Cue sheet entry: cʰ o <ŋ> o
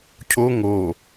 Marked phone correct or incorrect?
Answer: correct